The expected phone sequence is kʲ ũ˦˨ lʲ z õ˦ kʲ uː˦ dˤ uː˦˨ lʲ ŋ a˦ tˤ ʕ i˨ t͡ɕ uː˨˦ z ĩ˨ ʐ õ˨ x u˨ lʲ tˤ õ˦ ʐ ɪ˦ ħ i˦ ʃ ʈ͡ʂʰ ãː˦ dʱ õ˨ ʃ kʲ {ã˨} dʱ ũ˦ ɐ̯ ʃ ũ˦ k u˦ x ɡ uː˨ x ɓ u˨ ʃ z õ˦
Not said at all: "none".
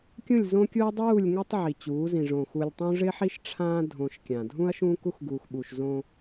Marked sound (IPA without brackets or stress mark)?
ã˨